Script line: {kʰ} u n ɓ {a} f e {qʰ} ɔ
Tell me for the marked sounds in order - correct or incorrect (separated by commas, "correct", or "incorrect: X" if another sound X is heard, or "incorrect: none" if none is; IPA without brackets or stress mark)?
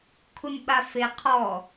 correct, correct, correct